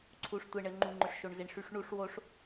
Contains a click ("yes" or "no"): yes